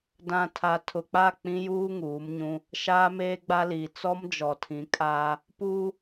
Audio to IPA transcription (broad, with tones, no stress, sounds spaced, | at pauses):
d ã˨ tʰ a˨ tʰ ʊ˨ k͡p a˦˨ k͡p ĩ˦ j uː˦ ŋ uː˨˦ m ɲ ũ˦ | ʃ aː˦ m eː˦ ɡ͡b a˦ l iː˨ t͡s ɔ˦ m d͡ʒ ɔ˨ tʰ ĩ˨˦ kʼ aː˦ | p uː˦